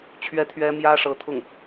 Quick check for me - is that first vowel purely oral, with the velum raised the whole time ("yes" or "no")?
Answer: yes